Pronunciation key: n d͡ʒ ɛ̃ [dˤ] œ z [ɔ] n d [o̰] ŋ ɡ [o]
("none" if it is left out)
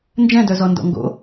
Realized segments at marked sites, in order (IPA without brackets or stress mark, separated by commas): d, ɔ, ɔ̰, o̰